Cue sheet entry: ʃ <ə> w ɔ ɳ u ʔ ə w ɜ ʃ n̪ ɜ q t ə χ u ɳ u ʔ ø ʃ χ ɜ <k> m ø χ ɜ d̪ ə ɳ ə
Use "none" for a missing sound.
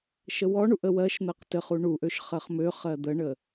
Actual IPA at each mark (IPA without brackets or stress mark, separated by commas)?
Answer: ə, χ